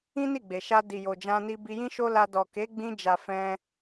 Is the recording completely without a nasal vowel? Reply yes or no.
no